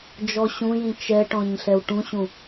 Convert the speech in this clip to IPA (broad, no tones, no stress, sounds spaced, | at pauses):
d͡ʒ ɔ ɕ ũ j ĩ t͡ʃ ɛ ʈ ɔ̃ ɲ ɬ ɛ w ʈ ũ ɕ ũ